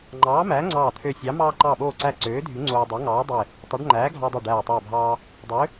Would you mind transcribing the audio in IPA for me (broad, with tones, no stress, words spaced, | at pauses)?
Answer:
ŋ͡ǃɑː˨˥mæː˨˥ŋ͡ǀɑː˧˩ t̪ʰø˧˩sʲɑ˨˥ mɑː˧ǃɑ˧˩ɓoː˧˩ǀæ˧˩ ǀøː˨˥dʱy˨˥ ŋ͡ǀoː˧ dˤe˨˥ŋɑː˨˥dˤe˧˩ | tˤo˨˥ɖ ŋ͡ǃæː˨˥ɡʱɑ˧dˤø˧˩ ɖæː˧˩ tˤeː˧˩bʱɑː˧ | dˤø˨˥